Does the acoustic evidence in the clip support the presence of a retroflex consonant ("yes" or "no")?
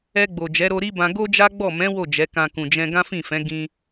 no